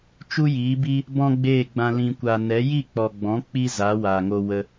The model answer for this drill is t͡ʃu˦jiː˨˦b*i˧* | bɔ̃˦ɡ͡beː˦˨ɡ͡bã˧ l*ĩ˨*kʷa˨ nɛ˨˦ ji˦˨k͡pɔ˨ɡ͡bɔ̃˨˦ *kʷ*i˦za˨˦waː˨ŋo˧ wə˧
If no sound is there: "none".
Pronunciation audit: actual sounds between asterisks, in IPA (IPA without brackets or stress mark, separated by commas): i˦, ĩ˨, k͡p